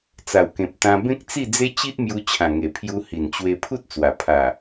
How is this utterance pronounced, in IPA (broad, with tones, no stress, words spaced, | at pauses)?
t͡sa˨˩wkẽ˨p̚t̪ã˧ bẽ˦k̚t͡si˥˧d͡ze˦ t͡ɕi˦ʔmju˧ t͡ɕʰã˨˩ŋe˨˩pʰju˧ hi˨˩nt͡ɕwe˧ pʰu˦t̚t͡swa˨˩pʰa˨˩